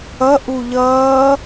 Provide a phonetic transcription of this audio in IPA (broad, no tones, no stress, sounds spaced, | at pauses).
ʌ ʔ u ʎ ʌː